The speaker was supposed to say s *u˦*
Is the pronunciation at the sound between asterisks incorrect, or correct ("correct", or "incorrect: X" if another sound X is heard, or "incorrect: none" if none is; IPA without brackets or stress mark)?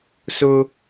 incorrect: ʊ˦